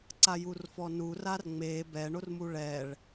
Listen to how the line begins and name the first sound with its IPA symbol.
ǀ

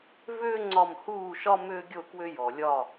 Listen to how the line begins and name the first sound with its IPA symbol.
v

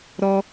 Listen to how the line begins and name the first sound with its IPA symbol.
ɾ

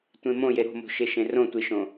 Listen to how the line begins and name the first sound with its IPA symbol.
tʷ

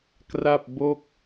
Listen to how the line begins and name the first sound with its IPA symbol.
k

